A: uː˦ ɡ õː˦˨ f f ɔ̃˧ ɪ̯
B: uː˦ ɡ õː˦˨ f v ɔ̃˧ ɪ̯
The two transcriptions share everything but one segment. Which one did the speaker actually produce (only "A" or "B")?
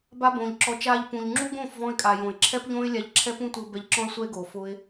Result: B